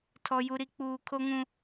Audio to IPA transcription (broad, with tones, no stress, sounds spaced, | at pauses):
tʰ ɔ˦ j u˦ ɾ i˦ k͡p uː˦ kʰ o˦ ŋ ũ˦